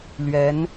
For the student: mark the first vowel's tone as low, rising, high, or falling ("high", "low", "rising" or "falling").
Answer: rising